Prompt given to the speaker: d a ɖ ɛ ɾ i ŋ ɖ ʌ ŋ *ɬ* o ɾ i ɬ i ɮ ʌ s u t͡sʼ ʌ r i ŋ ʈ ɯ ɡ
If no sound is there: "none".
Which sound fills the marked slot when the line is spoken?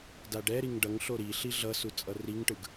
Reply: ɬ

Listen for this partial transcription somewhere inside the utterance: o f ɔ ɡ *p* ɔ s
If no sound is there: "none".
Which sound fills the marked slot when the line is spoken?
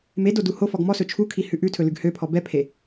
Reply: m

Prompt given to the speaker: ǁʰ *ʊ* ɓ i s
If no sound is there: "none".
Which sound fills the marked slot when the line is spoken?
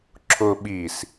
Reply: ʊ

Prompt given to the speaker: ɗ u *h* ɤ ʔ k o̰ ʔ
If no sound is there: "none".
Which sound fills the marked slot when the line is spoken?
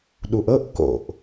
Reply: ʔ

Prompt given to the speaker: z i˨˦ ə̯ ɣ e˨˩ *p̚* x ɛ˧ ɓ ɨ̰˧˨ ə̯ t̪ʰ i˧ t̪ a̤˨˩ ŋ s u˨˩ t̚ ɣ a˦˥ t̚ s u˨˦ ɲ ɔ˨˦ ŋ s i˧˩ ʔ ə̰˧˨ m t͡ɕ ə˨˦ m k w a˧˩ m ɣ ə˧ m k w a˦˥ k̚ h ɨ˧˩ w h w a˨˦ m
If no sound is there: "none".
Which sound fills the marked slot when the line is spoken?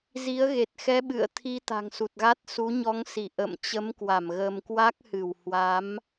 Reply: t̚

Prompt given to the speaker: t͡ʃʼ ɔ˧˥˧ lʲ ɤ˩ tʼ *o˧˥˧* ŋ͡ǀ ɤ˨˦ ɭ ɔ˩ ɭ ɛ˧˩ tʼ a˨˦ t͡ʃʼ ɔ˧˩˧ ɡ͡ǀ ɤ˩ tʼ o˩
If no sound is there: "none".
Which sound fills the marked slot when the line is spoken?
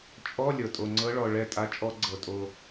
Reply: o˩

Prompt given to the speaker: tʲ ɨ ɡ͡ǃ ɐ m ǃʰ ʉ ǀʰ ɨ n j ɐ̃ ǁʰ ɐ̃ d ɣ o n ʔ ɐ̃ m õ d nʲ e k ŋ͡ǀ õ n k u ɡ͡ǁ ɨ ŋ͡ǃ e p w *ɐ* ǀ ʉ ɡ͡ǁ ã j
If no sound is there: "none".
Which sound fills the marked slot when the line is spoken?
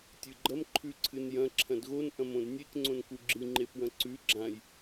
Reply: ɐ̃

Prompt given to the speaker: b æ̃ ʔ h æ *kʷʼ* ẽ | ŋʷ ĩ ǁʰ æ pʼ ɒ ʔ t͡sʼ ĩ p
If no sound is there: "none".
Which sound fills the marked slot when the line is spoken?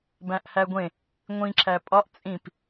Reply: ɡʷ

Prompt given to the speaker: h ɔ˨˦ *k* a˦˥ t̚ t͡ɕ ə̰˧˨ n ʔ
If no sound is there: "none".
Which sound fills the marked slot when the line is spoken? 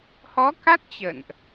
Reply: k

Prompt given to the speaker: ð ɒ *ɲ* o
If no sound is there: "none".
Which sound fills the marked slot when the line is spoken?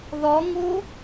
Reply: ŋ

